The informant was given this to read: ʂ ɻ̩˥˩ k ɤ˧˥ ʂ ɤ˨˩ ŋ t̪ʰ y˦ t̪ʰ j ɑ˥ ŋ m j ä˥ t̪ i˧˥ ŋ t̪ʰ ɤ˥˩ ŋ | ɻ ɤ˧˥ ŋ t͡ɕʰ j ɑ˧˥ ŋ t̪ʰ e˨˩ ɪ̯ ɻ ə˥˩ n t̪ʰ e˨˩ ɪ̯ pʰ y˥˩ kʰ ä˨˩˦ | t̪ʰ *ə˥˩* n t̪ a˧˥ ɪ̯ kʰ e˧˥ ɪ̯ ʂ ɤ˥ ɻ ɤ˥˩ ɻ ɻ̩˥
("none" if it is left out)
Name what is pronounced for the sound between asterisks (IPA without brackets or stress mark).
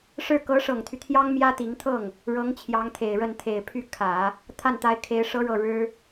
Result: a˥˩